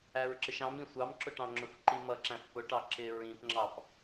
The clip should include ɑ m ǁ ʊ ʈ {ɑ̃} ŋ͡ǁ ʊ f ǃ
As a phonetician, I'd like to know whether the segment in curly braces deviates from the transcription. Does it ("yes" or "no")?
no